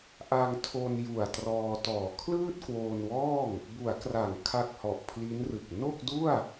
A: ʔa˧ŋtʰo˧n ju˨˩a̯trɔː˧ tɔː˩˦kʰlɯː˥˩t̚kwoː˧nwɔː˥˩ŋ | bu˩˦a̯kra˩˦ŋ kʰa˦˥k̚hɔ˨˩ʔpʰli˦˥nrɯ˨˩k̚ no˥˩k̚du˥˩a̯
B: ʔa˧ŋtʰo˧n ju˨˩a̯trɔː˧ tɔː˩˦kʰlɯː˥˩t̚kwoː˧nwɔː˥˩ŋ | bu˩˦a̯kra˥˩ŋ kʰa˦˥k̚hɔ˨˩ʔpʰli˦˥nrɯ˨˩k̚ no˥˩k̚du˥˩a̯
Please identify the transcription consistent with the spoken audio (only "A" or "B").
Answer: A